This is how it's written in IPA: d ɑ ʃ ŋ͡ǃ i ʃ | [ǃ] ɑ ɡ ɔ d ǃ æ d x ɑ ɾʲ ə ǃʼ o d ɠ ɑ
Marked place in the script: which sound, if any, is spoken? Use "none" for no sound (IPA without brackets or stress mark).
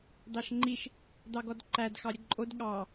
d